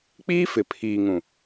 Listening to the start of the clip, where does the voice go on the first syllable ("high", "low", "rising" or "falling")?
high